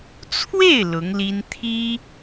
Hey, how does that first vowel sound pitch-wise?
falling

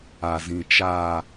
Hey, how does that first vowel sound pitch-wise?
low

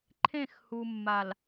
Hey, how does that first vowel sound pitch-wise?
falling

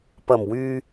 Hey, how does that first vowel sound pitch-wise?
low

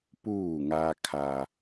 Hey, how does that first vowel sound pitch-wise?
falling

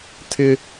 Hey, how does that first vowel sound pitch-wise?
high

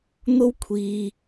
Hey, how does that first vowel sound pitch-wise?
high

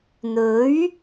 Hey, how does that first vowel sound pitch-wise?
rising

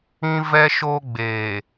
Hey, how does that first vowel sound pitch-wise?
high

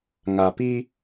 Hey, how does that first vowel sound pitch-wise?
low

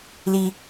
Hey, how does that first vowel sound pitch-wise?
high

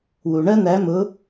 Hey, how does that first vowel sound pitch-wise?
low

